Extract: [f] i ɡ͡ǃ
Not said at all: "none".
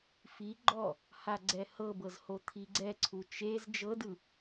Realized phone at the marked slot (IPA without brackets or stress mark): f